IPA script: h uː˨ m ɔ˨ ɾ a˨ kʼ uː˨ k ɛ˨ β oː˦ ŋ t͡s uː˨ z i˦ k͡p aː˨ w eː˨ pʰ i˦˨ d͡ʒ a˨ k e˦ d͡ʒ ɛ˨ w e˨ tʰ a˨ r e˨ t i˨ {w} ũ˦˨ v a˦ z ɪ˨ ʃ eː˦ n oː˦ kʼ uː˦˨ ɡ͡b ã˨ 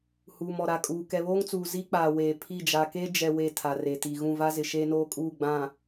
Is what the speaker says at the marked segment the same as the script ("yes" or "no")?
no